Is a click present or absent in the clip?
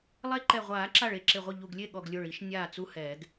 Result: present